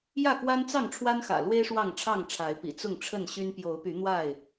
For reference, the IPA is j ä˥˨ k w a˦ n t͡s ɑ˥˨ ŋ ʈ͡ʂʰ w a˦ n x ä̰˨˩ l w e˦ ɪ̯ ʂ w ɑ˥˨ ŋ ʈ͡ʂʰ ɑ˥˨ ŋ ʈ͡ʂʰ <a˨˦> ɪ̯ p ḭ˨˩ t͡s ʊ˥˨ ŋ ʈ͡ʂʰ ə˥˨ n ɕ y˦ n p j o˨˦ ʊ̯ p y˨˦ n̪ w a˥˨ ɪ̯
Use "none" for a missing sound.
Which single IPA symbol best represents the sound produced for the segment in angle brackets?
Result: a˨˦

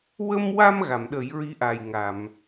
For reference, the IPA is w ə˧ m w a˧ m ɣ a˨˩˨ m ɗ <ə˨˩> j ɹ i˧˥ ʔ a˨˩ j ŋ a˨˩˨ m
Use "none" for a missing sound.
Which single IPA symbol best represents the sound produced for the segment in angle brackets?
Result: ə˨˩˦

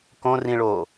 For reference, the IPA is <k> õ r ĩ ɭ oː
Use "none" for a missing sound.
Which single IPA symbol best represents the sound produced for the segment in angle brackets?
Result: k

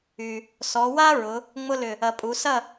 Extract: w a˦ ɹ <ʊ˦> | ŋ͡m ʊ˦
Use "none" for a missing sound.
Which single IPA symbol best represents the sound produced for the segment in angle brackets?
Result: ʊ˩˧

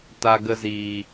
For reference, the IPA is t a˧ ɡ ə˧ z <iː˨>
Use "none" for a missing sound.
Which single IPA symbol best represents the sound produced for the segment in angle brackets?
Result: iː˨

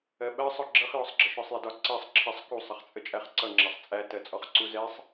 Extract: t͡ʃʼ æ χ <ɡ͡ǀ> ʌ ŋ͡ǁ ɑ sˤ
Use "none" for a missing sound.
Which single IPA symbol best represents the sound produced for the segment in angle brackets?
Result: ǀ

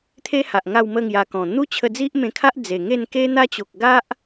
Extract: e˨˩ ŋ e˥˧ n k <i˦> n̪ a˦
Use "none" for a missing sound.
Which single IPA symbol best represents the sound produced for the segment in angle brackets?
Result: e˦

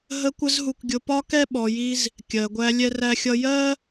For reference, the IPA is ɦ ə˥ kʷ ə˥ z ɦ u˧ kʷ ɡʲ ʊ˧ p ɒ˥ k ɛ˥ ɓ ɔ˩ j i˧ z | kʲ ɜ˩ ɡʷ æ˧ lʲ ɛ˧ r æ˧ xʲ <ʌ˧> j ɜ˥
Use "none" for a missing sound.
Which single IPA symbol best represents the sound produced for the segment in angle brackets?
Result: ʌ˧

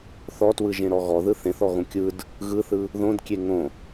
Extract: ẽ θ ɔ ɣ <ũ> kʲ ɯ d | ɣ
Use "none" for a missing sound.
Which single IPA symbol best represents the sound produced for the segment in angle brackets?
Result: õ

